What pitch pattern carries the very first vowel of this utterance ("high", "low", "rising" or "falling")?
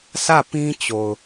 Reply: falling